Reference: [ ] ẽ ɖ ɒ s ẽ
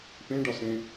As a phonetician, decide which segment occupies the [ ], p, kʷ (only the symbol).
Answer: p